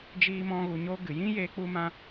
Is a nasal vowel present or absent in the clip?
present